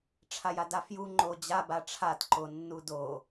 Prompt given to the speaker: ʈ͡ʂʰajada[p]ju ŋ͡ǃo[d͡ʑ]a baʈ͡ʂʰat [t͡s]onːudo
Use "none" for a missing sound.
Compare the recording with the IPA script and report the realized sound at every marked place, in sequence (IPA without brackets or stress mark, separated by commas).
f, d͡ʑ, ǃ